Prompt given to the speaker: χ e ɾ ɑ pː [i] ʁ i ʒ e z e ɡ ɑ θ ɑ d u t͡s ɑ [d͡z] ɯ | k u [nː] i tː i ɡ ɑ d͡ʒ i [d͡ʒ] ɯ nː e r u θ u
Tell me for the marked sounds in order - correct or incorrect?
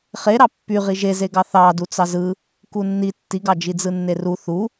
incorrect: y, incorrect: z, correct, incorrect: d͡z

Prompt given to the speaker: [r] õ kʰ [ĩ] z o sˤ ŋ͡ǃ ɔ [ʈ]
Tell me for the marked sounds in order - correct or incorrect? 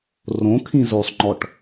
correct, correct, correct

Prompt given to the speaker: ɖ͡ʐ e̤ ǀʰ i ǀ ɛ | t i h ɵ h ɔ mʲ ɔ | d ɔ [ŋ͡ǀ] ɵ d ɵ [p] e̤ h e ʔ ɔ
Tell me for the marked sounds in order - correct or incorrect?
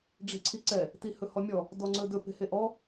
correct, correct

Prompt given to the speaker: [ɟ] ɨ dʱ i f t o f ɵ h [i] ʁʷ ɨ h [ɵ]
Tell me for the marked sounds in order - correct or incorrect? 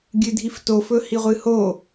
incorrect: ɡʲ, correct, incorrect: o

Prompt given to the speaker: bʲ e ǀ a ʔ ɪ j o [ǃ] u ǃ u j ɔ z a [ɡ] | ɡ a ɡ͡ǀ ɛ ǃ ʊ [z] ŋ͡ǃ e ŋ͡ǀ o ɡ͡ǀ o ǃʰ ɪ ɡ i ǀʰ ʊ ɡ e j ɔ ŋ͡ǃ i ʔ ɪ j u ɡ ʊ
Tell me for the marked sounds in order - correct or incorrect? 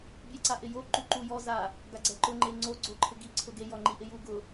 correct, incorrect: none, incorrect: none

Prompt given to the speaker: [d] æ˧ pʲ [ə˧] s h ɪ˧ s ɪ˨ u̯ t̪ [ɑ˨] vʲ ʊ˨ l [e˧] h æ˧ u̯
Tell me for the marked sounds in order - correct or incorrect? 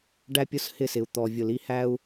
incorrect: ɖ, incorrect: ʊ˧, incorrect: ɔ˨, incorrect: i˧

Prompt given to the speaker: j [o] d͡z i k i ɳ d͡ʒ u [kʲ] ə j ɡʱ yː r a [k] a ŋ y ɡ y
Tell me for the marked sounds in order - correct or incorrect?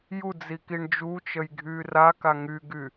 incorrect: u, incorrect: t͡ʃ, correct

